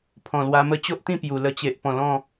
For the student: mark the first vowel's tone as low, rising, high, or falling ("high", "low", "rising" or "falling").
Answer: low